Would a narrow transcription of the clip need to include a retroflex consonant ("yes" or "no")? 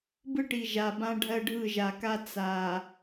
yes